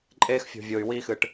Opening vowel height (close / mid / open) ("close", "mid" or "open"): mid